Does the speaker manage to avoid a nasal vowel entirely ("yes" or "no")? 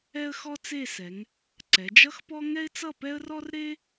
yes